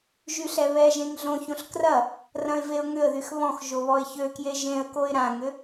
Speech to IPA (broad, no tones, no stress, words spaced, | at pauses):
ʒyɬɛβɛʒẽŋ ɮõçõɬ krɐ | rɐ̃ɪ̯veʊ̯ŋʏə̯ðyx βɔ̃x ʒoβɔɪ̯çøkje ʒẽə̯koɪ̯ ɾãŋʏ